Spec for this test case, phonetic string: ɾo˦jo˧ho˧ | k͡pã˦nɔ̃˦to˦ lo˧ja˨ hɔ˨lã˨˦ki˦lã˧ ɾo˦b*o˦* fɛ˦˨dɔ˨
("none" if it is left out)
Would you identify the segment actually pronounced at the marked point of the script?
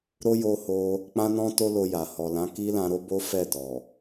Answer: o˦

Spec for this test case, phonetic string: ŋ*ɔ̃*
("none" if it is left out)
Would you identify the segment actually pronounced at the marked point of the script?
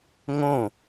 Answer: õ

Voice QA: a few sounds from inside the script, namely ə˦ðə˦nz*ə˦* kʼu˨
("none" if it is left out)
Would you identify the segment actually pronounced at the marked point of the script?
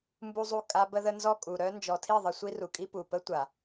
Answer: ɔ˦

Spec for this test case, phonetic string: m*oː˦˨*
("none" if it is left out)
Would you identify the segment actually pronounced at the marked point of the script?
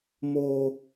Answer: oː˦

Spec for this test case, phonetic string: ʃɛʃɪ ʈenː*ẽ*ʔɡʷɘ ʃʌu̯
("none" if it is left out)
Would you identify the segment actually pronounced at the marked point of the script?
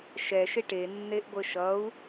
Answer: e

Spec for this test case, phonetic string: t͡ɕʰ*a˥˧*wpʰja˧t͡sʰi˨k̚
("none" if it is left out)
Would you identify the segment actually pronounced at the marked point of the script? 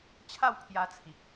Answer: a˥˧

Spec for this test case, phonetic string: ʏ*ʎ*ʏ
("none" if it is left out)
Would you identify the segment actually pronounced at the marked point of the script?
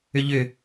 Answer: ʎ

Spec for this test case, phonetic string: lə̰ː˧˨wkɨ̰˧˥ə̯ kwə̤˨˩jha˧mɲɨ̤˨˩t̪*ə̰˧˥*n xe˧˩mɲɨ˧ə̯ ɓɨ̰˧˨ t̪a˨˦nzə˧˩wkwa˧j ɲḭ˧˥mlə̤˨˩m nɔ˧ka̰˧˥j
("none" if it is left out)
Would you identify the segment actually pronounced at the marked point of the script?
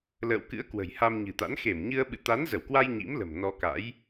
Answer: a̰˧˥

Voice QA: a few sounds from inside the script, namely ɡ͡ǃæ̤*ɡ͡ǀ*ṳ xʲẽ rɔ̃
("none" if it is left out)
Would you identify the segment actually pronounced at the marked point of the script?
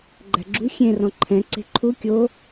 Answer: ɡ͡ǁ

